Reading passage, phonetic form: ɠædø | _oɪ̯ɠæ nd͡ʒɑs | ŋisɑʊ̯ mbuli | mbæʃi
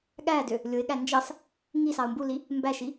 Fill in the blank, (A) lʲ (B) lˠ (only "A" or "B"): A